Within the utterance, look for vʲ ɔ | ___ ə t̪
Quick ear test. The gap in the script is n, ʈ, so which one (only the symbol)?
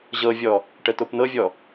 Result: ʈ